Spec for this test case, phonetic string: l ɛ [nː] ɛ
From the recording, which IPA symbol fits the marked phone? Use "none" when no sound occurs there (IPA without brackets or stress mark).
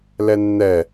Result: nː